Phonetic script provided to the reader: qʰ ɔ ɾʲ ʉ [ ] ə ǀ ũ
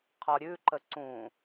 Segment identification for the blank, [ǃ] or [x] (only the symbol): ǃ